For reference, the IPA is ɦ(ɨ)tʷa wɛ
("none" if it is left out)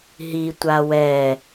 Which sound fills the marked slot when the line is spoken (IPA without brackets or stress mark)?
i